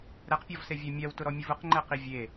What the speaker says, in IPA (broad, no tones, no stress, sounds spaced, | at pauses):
ɾ ɛ q pʲ ɔ v s e vʲ ɛ mʲ a w t ʊ ɾ ɔ mʲ ʊ v ʊ q ŋ͡ǃ ɛ q i vʲ e